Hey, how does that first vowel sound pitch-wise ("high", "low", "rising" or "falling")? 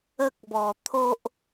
high